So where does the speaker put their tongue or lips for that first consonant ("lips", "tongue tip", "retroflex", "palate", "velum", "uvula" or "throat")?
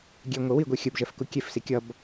velum